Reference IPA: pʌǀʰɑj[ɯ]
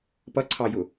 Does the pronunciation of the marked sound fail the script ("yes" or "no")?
yes